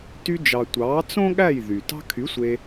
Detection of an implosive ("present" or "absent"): present